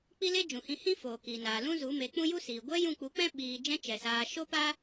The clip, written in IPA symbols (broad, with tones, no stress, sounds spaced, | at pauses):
k͡p i˦ l e˦ d͡ʒ ũ˨ h ĩ˧ h ĩ˦ f oː˨ k iː˨ n aː˨ l ũ˦ z u˨˦ m e˨˦ k͡p ũ˦ j u˦ s iː˨ ɡʷ ɛ˦ j ũ˦˨ k͡p u˨˦ k͡p ɛ̃˦ ɓ iː˨ d͡ʒ ɛ̃˦ t͡ʃ ɛ˨ s aː˧ ʃ o˦ p a˦